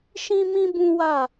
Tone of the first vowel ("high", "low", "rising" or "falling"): high